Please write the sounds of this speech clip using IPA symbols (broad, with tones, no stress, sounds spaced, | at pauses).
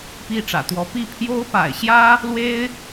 p i˥˩ ʈ͡ʂ ä̰˨˩ t̪ w ɔ˧˥ p i˥˩ pʰ j o˥ ʊ̯ p a̰˨˩ ɪ̯ ɕ j ä˥ | l w e˥ ɪ̯